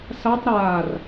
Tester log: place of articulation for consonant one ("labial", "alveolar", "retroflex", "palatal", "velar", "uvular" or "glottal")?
alveolar